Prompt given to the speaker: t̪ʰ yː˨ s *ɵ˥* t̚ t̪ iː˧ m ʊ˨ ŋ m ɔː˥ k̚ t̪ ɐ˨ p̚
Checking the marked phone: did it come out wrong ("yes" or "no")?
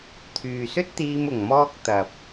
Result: no